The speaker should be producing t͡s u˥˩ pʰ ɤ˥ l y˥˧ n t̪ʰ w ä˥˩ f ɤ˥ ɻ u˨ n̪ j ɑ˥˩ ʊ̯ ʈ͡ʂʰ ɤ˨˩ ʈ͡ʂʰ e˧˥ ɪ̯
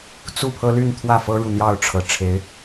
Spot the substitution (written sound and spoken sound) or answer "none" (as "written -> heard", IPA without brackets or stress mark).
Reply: none